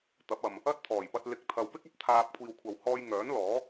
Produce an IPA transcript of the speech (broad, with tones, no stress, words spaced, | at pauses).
t̪ɐ˨˥p̚ɐ˨m | ɐ˥t̚t̪ʰɔː˨˩jpɐ˧t̚ lɪ˨k̚t̪ʰɐ˨wpɪ˥k̚ɐ˥p̚ t̪ʰaː˧p̚ kʷʰiː˨wkʷʰɐ˨w hɔː˧jŋœː˨˥n lɔː˨˥